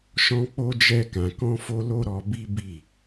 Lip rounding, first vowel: rounded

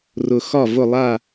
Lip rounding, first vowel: rounded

